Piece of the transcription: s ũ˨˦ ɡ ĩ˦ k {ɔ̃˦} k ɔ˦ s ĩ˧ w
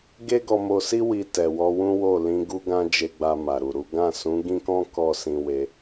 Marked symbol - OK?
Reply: yes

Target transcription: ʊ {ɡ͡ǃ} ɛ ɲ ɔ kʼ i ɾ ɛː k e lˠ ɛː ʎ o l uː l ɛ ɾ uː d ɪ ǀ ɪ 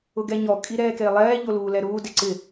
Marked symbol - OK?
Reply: no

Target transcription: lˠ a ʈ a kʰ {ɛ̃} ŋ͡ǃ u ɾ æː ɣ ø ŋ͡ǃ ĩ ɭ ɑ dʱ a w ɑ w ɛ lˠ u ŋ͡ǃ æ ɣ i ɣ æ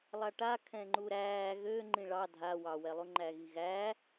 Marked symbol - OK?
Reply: yes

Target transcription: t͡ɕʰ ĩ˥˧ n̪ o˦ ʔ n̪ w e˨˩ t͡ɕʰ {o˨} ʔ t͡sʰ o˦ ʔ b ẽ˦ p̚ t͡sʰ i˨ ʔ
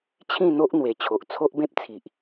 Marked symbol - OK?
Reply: yes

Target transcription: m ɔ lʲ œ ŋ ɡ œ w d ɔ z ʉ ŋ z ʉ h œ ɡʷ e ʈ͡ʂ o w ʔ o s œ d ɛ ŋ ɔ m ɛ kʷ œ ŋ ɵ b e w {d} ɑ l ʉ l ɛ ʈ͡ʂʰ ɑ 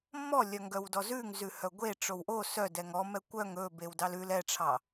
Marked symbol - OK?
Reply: yes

